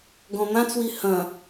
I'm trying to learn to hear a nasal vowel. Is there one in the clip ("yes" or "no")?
yes